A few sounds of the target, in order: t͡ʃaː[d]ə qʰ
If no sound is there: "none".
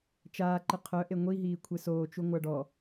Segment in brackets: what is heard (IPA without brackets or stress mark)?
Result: ǃ